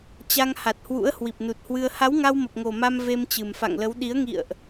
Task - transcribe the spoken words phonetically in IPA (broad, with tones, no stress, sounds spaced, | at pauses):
t͡ɕ a˧ ŋ h a˨˩ t̚ h w ṵ˧˥ ə̯ h w i˨˩ p̚ n u˨˩ t̚ h w ɨ˧ ə̯ h a˨˦ w ŋ a˧ w m ə˨˩ p̚ ŋ o˨˩ m a˧ m v e˧ m t͡ɕ ɨ˨˩ m f a̰˧˨ ŋ l ə˨˦ w ɗ i˨˦ ə̯ ŋ ḭ˧˨ ə̯ ʔ